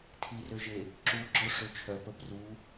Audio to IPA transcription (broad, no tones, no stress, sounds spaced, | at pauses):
tʰ i r ø ʒ e | ǁ u ɡ͡ǁ ɔ ʂ ø t͡ʃʰ œ p ə p r u